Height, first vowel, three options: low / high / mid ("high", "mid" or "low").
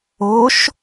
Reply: mid